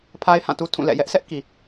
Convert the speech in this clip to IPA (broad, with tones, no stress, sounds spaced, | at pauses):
pʰ a˦ ɪ̯ h ã˦˨ t u˦ tʰ ũ˦˨ l ɛ̰˦˨ j ɛ˦ ʔ s ɛ˦ ʔ k i˨